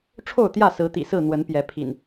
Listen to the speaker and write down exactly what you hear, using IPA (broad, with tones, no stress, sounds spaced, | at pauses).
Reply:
ʈ͡ʂʰ o˥˨ ʊ̯ t̪ j ä˥˨ s ɹ̩˨˦ t̪ ḭ˨˩ s ɹ̩˥˨ n̪ w ə˨˦ n p j ɛ˨˦ pʰ ḭ˨˩ n